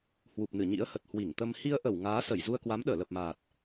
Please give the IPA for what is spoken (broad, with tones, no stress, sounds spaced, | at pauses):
h w u˨˩ p̚ n ɨ˧˩ ɲ ḭ˧˥ ə̯ h ə˨˩ t̚ h w i˧˩ ŋ t̪ ə˧ m h i˧ ə̯ ʔ ə˧˩ w ŋ aː˨˦ s ə˧˩ j z u˧ ə̯ k w a˨˦ m ɗ əː˧˩ l ə˨˩ p̚ m aː˨˩ t̚